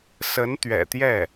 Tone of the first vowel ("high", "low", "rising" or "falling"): rising